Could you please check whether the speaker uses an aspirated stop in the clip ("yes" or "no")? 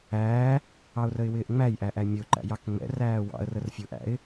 no